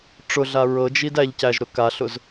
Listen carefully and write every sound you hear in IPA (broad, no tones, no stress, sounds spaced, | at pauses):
ʈ͡ʂ ʊ ɮ a ɹ ɤ d͡ʒ i d æ ʎ c æ ʒ ɾ ʊ k a ɬ ʊ z